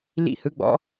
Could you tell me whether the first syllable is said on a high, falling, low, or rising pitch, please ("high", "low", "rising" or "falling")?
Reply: falling